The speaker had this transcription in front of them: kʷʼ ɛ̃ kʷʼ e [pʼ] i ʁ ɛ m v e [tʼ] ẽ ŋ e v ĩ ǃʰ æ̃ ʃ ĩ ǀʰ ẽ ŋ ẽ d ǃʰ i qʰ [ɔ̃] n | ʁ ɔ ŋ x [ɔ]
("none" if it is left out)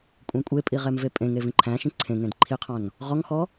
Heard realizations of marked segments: pʼ, pʼ, ɔ̃, ɔ

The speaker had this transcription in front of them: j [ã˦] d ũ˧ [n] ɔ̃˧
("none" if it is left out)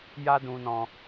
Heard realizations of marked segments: a˦, n

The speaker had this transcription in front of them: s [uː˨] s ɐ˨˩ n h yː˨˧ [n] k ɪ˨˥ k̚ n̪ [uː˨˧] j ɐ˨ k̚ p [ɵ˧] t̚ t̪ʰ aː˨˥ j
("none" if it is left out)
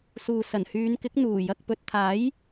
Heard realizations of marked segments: uː˨, n, uː˨˩, ɵ˨

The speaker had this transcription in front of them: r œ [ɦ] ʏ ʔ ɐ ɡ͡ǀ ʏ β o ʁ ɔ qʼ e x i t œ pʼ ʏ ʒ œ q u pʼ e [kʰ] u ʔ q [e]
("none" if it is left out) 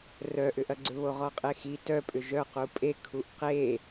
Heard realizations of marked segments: ʔ, kʰ, e

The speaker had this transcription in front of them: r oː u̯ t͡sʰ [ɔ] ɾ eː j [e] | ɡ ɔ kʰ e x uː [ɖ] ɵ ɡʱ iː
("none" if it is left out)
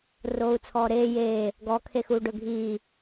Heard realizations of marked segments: ɔː, eː, ɖ

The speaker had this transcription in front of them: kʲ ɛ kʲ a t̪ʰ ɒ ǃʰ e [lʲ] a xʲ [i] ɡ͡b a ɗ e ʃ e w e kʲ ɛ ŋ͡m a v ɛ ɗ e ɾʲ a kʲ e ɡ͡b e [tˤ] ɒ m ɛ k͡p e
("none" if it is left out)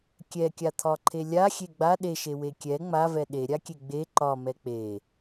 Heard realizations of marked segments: lʲ, e, ǃ

